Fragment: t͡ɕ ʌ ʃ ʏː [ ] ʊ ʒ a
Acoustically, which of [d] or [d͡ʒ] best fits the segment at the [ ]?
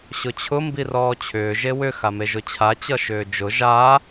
d͡ʒ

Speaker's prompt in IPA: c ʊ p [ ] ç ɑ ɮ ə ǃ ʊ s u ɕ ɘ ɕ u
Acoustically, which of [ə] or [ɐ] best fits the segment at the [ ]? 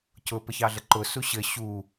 ə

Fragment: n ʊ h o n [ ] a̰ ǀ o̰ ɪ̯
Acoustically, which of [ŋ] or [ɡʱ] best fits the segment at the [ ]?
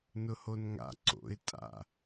ŋ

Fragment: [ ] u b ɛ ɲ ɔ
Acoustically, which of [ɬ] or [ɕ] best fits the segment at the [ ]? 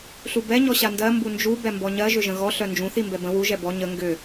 ɬ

